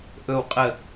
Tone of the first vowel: falling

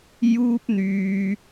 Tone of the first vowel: high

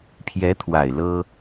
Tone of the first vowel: rising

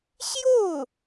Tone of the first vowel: falling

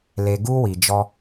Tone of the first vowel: low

